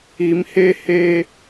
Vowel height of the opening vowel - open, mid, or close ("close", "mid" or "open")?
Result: close